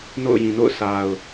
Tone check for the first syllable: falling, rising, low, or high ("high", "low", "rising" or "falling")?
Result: falling